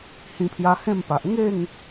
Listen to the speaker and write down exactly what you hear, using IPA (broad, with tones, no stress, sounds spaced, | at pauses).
h ĩ˧ pʰ j a˧ h ẽ˥˧ m p a˨ ʔ ŋ e˥˧ ŋ